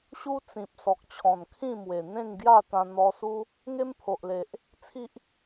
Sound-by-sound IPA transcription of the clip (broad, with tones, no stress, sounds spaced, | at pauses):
ɕ u˦ t͡s ĩ˨ p̚ s ɔ˨ k̚ t͡ɕʰ ɔ̃˨˩ n kʰ ĩ˥˧ m w e˨˩ n̪ ẽ˥˧ ŋ ɡ j a˥˧ t̪ ã˧ n̪ ɔ˧ s u˦ | ŋ e˦ m pʰ o˨ ʔ l e˨ ʔ | t͡sʰ i˦ ʔ